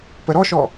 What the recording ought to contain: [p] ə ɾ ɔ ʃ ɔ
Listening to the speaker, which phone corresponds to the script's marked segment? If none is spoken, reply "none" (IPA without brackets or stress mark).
p